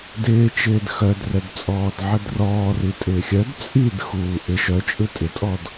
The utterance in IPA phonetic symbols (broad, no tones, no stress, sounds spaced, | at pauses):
d ɪː t͡ʃ ɪː d x œ d r ɛ d t͡sʼ ɔː d ʕ ə d r ɔː r i tʼ ɪː xʲ œ d t͡sʼ i d x uː ʔ ɪ ʃ œ t͡ʃʼ ɯ tʼ ɪ tʼ ɔ d